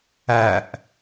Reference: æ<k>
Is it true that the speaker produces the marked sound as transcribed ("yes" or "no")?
no